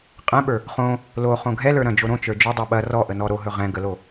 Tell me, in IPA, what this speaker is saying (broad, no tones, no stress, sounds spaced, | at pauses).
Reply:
qʼ ɛ̃ ɓ ə˞ | χ õ | l o χ õ ɡʱ ɛ l ə˞ ɾ ɐ̃ d͡ʒ o ɾ õ t͡ʃ ə˞ d͡ʒ ɵ dˤ ɛ ɓ ɐ r ɔ ʔ ə n ɔ ɾ o ɦ ɵ ʁ ɛ̃ ɡ ə l o